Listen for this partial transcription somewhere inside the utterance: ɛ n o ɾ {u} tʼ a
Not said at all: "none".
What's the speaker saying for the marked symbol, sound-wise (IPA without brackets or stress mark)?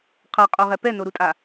u